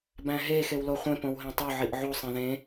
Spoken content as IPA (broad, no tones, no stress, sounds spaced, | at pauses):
b æ̃ ɦ e x e w l o χʷ ẽ p õ w ɦ ẽ tˤ o ʕ i ʔ ʕ u sˤ ẽ ð ẽ